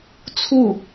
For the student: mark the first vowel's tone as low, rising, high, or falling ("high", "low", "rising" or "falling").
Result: falling